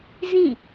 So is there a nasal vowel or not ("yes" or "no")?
yes